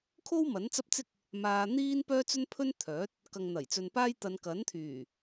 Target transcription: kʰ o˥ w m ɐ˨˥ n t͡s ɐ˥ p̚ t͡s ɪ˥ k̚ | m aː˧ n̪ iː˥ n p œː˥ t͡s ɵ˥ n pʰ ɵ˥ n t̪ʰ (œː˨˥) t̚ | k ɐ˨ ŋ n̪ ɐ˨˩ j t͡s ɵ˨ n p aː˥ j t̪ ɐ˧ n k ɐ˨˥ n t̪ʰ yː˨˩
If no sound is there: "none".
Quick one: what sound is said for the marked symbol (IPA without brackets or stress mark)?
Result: œː˨˥